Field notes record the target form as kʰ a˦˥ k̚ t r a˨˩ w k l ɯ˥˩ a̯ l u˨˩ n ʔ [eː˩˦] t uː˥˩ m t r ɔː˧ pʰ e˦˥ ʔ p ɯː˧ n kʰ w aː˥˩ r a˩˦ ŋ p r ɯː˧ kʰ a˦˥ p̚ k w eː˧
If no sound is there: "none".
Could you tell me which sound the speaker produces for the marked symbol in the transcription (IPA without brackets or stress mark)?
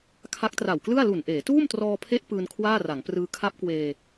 eː˩˦